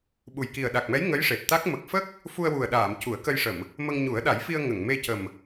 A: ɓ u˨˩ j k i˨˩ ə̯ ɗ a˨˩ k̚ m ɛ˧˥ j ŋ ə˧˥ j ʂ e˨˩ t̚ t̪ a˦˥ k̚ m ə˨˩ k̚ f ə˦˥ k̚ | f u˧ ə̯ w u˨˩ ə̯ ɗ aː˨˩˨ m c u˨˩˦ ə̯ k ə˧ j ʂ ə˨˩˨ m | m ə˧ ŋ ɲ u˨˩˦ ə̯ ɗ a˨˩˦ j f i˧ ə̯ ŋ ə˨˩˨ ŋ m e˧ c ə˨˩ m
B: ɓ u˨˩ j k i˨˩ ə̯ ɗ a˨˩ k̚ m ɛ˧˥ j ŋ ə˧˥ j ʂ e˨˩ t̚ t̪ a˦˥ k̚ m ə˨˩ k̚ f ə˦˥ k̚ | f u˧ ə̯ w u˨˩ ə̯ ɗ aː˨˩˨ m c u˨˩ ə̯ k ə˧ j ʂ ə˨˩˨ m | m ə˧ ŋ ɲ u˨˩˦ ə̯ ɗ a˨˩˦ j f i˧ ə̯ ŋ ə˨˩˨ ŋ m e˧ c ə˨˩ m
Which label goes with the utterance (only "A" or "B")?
A